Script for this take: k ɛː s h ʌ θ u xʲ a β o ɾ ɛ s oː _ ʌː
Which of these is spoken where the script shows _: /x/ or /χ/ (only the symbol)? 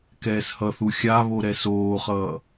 χ